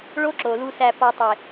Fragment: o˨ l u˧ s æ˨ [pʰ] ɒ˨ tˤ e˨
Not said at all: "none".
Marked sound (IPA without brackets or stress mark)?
p